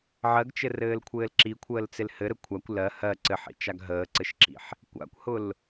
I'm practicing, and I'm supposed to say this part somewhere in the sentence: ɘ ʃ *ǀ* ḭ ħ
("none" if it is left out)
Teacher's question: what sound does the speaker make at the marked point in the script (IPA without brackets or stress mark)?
ǁ